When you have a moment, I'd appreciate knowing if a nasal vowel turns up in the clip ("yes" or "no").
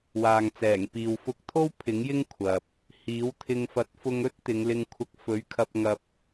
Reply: no